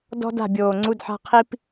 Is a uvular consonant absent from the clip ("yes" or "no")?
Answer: no